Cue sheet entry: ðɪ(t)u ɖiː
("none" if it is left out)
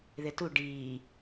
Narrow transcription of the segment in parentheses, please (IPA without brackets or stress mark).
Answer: t